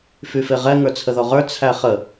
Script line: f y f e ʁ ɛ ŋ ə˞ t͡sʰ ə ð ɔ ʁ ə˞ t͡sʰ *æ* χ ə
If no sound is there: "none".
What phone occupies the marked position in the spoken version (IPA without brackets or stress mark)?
æ